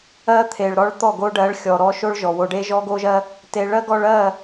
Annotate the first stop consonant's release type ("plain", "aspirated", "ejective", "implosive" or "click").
aspirated